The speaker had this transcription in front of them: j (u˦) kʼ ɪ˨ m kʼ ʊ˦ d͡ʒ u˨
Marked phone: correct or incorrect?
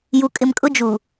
incorrect